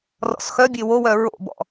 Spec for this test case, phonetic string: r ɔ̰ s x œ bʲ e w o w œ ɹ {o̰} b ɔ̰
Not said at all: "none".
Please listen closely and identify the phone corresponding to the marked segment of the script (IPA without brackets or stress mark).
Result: o̰